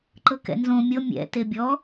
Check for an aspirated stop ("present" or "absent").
absent